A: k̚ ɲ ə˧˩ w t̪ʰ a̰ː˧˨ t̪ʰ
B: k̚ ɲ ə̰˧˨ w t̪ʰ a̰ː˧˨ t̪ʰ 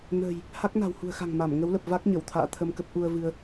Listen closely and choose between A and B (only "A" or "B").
A